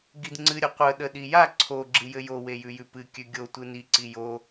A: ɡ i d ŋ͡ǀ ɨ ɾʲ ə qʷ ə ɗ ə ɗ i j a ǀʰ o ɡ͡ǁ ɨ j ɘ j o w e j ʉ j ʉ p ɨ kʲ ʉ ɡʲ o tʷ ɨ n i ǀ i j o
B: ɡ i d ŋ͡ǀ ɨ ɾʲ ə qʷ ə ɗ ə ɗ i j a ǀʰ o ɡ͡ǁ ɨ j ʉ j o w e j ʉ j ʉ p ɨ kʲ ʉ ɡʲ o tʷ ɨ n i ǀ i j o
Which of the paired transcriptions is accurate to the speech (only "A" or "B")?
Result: A